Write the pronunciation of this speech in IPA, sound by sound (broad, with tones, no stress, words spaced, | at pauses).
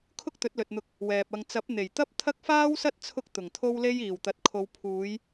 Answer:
kʰʊ˥k̚t̪ɵ˨˥t̚lɵ˨t̚n̪ʊ˧k̚ | wɛː˨p̚ɐ˧ŋ t͡sɐ˨˥p̚n̪e˨˩jt̪ɐ˥p̚ t̪ʰɐ˥k̚faː˥wsɐ˥t̚ t͡sʰʊ˥k̚ t̪ʊ˨˩ŋt̪ʰo˥wle˥j iː˨˩wt̪ɐ˨t̚kʰo˨˧w pʰuː˨˧j